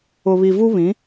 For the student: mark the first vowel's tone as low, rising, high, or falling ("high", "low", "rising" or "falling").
low